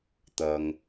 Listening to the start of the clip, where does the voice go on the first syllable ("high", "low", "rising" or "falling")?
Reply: low